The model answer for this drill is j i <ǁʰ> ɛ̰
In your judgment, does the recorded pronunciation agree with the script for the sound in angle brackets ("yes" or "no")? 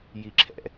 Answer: yes